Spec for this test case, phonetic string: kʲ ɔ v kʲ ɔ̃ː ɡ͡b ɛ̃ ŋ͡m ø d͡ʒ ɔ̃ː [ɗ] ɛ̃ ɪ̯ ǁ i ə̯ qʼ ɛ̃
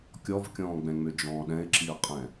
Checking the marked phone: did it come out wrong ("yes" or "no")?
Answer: no